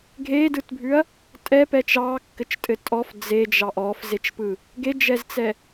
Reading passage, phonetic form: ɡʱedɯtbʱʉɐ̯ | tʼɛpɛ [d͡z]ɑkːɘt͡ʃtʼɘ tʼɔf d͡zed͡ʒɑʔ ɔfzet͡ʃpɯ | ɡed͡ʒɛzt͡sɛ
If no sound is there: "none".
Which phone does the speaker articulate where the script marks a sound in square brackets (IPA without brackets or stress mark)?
t͡ʃ